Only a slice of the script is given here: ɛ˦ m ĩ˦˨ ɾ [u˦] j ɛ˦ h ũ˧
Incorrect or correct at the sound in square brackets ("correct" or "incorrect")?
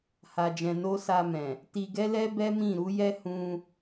incorrect